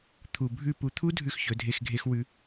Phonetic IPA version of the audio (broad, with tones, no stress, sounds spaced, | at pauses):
t̪ʰ u˨ bʱ ʉ˦˨ p u˧ t̪ʰ u˦ dʱ ʉ˦˨ x ç ɵ˨˦ dʱ e˧ x ɡʱ e˦ x w ʉ˦